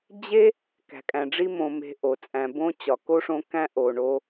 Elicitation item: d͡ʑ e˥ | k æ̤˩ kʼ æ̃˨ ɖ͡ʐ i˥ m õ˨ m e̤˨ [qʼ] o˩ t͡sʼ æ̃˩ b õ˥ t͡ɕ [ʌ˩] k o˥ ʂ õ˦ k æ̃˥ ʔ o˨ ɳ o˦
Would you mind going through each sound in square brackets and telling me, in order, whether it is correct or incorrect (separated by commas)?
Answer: incorrect, incorrect